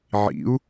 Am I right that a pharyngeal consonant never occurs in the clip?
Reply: no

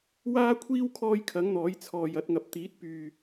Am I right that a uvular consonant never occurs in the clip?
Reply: yes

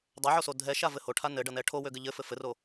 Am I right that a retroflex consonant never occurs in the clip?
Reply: no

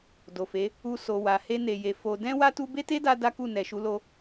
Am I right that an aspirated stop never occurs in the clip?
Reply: yes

